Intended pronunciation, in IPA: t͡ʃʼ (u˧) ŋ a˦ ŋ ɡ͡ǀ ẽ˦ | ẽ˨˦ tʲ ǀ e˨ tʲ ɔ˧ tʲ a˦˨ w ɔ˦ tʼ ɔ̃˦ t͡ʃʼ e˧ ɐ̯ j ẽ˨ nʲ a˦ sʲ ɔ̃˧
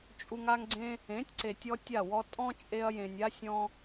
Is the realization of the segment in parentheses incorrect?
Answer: no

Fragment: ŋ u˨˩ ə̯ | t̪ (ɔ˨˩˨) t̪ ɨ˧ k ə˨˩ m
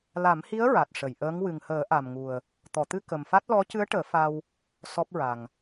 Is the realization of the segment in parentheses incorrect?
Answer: no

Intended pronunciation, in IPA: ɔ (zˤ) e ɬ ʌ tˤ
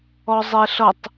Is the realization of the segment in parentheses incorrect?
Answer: no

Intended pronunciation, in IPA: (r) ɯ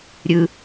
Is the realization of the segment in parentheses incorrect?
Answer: yes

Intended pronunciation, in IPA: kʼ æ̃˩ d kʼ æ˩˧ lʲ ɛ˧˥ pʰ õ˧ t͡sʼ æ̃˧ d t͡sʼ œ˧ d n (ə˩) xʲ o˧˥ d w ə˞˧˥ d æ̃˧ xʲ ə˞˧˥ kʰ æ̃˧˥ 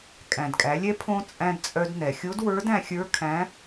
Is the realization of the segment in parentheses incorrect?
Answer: yes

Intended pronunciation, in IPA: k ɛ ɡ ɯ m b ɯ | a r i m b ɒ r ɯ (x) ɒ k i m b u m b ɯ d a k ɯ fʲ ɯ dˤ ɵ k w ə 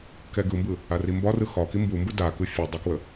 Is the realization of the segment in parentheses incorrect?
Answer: no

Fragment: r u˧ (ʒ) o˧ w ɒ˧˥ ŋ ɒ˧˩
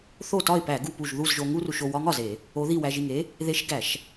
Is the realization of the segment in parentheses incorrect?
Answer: yes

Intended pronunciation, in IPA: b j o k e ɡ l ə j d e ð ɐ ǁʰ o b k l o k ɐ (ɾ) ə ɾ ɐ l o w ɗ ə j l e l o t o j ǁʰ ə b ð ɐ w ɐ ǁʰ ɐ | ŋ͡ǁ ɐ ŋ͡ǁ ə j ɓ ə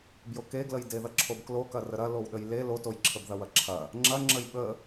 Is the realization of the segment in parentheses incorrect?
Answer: yes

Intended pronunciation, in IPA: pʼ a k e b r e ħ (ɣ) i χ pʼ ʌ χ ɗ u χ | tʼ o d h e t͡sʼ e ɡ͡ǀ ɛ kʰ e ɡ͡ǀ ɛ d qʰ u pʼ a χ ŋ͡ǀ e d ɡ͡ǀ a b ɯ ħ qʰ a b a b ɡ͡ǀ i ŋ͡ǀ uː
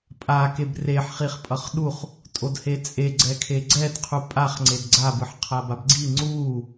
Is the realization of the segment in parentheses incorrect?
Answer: yes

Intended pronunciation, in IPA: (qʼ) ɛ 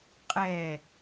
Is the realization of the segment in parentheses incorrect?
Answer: no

